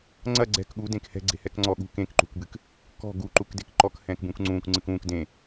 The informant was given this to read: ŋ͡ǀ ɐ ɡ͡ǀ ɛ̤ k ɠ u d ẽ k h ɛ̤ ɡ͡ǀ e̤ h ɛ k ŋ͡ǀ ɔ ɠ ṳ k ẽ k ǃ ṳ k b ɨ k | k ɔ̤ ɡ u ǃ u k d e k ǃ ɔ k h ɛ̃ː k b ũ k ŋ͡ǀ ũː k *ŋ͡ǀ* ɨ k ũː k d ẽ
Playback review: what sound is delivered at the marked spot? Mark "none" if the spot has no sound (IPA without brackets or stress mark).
ŋ͡ǀ